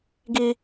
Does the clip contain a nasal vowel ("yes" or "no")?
no